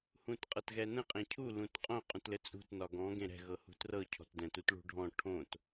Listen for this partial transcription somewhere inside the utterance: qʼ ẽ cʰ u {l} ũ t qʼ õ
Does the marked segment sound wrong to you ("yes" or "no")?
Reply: no